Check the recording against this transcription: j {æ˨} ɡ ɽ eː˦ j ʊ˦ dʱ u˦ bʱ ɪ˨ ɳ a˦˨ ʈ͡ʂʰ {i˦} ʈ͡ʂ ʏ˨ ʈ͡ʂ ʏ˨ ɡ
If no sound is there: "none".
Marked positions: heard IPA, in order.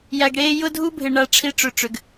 æ˨, i˦

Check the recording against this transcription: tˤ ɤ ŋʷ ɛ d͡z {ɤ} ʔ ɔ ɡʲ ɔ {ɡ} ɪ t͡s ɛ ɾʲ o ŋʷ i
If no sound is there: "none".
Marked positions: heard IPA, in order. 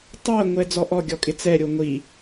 ɔ, kʼ

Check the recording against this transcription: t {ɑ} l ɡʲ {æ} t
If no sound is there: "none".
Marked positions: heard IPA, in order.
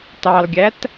ɑ, æ

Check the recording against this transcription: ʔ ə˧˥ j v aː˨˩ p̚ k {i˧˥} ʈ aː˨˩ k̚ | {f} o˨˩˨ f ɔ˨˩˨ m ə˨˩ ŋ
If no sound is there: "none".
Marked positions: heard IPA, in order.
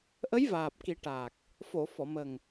i˨˩˦, f

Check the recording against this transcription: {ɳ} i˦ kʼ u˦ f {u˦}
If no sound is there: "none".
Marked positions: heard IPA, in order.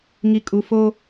ŋ, o˦

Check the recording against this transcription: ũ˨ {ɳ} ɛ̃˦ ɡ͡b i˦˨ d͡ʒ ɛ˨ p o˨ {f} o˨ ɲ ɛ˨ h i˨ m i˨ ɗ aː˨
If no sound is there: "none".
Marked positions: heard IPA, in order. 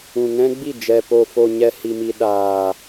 ŋ, f

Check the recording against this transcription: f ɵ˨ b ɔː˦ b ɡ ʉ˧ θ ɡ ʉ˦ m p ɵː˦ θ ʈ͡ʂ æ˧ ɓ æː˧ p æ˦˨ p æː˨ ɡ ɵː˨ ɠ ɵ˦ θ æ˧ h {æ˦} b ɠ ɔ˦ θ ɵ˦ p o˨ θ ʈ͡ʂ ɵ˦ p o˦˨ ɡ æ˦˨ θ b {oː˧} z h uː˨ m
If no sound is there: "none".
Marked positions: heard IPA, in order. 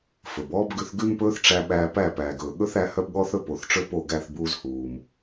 œ˦, uː˧

